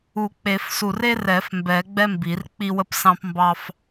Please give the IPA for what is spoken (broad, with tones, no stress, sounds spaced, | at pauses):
u˨˩˦ k͡p e˨˩˦ f s u˧˩ r e˥ r ɛ˨˩˦ f m b ɛ˨˩˦ ɡ͡b ɛ˥ m b i˨˩˦ r k͡p i˥ w ə˥ p s ɑ̃˥ p m b ɑ˥ f